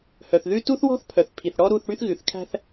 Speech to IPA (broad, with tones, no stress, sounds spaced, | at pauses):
h œ˨ θ ð ʉ˦ t u˦ θ w ɔ̤˦ θ pʰ œ˨ θ pʰ i˨ θ ɽ ɔ˦ ɾ u˦˨ θ ɽ y˦ θ ɣ ʉ˨ θ kʰ æ̤˦ θ